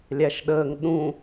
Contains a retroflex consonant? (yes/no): no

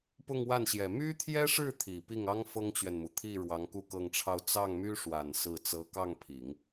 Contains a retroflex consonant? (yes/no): yes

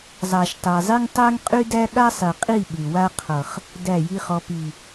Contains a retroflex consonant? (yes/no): no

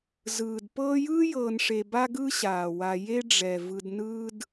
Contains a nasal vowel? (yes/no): no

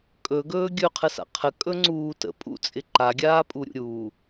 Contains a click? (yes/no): yes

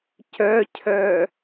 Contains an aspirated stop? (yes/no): yes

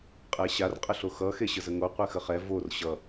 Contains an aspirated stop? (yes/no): no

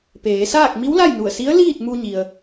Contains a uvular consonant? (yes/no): no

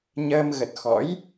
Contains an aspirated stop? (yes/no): no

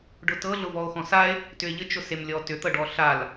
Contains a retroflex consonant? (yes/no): yes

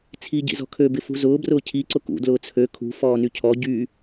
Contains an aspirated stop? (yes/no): yes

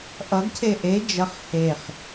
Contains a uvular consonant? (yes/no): yes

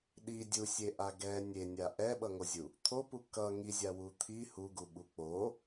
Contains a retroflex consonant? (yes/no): no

